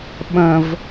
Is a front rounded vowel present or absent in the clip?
absent